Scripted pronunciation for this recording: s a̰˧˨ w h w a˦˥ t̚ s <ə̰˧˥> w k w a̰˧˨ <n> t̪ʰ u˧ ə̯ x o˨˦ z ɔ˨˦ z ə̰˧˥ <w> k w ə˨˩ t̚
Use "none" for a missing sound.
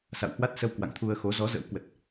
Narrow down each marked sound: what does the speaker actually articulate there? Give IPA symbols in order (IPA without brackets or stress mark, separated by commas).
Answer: ə˧, ŋ, w